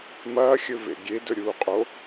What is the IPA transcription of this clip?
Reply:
m ɐː xʲ ɵ v ḛ ɡʲ e d ɵ ɾʲ uː qʼ o

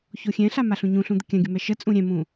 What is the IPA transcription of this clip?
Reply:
ç o xʲ ɛ̃ ɬ a m a ɬ ũ ɲ ũ ɬ ũ d̪ ə kʲ ã ɡʲ ə m ɛ ʃ ə t͡sʼ ũ ɾʲ ɛ̃ m ũ

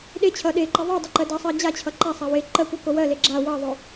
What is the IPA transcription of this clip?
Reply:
ɗ e t͡ɕʰ ʌ ɗ e ǃ ʌ ðˤ ʌ dˤ ʌ ǃ ɜ d ʌ sˤ ɜ d͡ʑ a t͡ɕʰ ʌ ǃ a sˤ a w e ǃ ɜ kʷ ʌ k o w ɜ l e ɡ͡ǁ a w ʌ ðˤ o

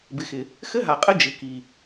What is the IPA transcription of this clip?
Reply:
b ɪ˨ x ɪ˨ | x ɘ˦ ɦ a˨ qʼ ɘ˦ d͡ʒ ɪ˨ k i˨

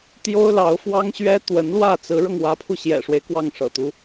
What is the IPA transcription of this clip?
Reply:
t̪ j o˥ ʊ̯ l ɑ˧˥ ʊ̯ f w ɑ˥ ŋ ɕ ɥ ɛ˥ t̪ w ə˧˥ n l w ä˥˩ t͡s ɹ̩˧˥ ɻ ɤ˧ ŋ w ä˧˥ pʰ u˧ ɕ j ɛ̰˨˩ ʂ w e˦ ɪ̯ k w ɑ˥˩ ŋ ʂ ɤ̰˨˩ t̪ u˦

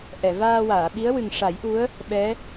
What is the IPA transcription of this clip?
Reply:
ʔ ɛ˨˩˨ v aː˧ w aː˨˩˨ ɓ i˧˥ ə̯ w ɨ˨˩ ŋ ʂ a˨˩˦ j ʔ u˧˥ ə̯ | ɓ ɛ˧˥

